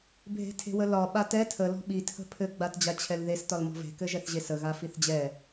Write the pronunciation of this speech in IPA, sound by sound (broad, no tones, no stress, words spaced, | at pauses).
bʱe̤tʰe̤wəlɒ ɓatɛ tʰə lɔ̤ɓi tʰə̤pʰɘ ɡ͡batd͡ʑat͡ɕʰɛlðes tɒlmɔ̤ve̤ kɘʒɛθʑesə ɣafiθd͡ʑɛ